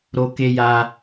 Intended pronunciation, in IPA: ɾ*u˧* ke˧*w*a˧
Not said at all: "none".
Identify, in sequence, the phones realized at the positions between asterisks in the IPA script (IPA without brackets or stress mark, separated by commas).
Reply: o˧, j